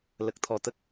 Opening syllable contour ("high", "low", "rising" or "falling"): low